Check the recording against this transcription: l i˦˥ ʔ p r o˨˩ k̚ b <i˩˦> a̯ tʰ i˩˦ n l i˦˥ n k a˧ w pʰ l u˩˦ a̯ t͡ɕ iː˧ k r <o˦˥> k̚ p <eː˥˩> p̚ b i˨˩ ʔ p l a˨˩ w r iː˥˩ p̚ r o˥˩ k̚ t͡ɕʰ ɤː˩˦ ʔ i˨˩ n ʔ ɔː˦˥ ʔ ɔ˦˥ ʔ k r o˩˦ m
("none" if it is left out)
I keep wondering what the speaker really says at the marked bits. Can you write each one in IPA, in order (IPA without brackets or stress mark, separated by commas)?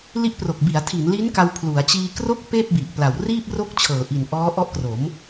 i˩˦, o˦˥, eː˥˩